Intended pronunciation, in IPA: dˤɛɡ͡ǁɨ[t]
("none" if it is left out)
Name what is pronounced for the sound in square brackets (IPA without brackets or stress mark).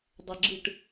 ʈ